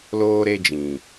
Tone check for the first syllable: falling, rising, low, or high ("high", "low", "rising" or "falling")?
high